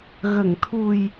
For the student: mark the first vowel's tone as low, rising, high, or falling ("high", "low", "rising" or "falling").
low